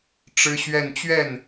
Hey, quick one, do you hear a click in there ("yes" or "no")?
no